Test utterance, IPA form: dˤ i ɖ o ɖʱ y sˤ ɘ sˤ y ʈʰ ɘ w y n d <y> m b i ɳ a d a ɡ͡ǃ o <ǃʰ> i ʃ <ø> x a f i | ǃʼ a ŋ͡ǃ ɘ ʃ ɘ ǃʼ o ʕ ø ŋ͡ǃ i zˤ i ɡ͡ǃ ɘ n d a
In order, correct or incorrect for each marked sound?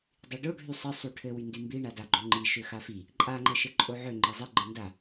correct, incorrect, correct

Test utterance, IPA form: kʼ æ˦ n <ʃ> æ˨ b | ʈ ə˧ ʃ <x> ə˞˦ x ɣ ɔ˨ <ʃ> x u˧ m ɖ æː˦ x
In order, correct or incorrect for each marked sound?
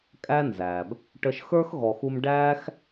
incorrect, correct, incorrect

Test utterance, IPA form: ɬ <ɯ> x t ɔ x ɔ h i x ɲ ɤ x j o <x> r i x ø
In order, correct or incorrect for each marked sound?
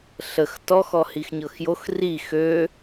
incorrect, correct

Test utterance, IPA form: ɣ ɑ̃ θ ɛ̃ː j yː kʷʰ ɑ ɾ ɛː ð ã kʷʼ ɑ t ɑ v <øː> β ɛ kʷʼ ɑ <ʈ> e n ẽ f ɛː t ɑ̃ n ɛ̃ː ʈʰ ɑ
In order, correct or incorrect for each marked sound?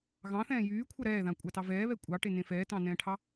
incorrect, correct

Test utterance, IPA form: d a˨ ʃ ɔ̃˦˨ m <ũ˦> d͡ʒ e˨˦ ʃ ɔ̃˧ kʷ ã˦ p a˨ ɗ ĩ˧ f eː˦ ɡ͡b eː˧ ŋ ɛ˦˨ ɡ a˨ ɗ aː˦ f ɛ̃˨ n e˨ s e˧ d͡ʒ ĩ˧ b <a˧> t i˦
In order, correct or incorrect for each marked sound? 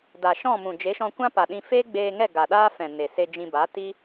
incorrect, incorrect

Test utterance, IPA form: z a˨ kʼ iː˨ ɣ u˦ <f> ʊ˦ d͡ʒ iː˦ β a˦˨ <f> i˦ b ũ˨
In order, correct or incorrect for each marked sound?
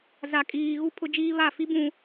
incorrect, correct

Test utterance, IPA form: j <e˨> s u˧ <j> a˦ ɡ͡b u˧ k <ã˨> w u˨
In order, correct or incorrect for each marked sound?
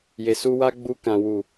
correct, incorrect, correct

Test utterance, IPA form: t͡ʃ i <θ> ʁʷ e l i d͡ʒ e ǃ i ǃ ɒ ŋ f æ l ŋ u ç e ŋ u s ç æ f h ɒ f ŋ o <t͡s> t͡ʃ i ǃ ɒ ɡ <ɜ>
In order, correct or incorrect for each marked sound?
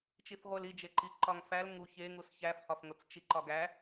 correct, correct, incorrect

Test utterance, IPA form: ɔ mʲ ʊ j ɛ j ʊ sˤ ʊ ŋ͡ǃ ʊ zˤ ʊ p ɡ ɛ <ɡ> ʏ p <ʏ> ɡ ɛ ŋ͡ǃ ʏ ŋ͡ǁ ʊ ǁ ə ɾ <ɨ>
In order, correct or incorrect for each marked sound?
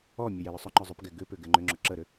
correct, correct, incorrect

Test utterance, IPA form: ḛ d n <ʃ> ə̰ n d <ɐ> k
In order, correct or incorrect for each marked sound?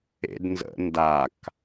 incorrect, incorrect

